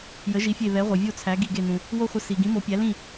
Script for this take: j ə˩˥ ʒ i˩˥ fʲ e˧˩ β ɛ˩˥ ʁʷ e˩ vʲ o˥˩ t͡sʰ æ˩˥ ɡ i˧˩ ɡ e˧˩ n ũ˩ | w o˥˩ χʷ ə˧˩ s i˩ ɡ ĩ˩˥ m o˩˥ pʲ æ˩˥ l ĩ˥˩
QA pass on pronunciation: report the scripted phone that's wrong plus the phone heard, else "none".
none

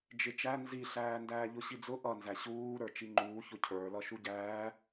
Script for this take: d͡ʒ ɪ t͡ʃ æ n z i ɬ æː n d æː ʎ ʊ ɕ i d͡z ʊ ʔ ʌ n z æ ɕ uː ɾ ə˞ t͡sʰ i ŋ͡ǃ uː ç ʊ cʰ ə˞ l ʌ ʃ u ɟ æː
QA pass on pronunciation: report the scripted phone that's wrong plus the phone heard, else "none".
t͡sʰ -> t͡ʃ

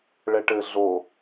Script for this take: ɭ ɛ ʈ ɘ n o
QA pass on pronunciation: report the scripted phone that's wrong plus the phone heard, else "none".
n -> ɮ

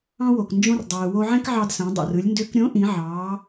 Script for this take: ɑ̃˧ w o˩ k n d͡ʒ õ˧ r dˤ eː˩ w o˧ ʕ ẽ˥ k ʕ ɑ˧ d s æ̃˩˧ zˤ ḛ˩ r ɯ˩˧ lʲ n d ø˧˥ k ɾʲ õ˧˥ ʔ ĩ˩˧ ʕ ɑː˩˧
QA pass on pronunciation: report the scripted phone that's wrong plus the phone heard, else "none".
zˤ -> dˤ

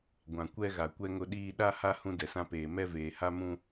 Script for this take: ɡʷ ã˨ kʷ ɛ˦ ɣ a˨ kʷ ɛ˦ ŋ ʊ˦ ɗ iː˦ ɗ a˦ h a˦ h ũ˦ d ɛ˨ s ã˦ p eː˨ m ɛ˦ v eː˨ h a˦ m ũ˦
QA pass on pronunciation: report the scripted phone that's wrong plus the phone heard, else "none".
none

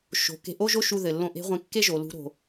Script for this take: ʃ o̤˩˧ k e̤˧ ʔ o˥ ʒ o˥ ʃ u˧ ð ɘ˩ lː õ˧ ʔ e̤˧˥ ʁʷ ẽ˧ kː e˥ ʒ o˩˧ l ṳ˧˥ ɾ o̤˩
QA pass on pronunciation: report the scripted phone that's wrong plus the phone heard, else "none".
none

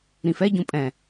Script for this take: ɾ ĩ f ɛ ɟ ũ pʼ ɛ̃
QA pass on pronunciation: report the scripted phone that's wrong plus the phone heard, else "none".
none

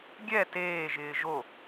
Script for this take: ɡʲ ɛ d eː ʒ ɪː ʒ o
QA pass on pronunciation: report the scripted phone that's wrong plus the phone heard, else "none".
d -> t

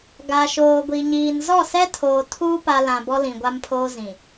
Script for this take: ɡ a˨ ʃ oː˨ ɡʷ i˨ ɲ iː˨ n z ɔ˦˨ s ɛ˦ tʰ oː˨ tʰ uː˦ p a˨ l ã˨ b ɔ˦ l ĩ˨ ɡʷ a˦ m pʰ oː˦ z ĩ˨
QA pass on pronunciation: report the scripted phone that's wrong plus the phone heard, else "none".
none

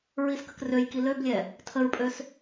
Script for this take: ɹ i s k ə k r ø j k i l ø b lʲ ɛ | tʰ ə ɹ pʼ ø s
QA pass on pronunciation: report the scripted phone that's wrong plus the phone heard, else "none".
none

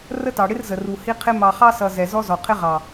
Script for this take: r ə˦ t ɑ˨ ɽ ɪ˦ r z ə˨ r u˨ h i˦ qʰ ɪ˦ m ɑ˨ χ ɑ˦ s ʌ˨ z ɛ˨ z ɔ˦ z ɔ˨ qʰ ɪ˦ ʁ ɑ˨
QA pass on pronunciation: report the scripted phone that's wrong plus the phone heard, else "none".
none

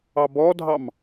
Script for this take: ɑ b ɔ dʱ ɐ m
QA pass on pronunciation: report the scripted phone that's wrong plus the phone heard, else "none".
ɐ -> ɑ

